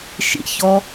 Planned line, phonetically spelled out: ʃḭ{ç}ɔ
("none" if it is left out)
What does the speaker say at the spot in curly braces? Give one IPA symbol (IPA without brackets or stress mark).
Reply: ç